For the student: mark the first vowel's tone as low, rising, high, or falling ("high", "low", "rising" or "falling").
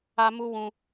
high